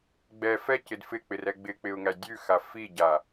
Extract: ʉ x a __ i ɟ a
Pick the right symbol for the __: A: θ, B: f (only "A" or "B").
B